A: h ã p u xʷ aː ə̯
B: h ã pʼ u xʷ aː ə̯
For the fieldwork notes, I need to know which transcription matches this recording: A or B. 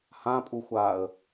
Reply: B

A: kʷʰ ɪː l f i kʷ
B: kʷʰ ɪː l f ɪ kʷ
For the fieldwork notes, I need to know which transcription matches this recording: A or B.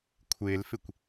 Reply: B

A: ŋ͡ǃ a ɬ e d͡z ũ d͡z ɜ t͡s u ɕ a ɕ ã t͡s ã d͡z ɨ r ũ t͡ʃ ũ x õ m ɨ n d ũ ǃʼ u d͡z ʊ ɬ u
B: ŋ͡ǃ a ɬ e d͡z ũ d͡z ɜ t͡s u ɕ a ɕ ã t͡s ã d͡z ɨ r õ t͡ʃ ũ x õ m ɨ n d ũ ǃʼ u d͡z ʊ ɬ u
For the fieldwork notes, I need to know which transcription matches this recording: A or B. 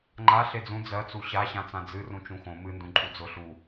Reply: A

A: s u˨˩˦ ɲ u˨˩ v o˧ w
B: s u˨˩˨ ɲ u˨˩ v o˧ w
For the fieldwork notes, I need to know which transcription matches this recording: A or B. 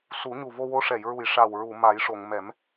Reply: A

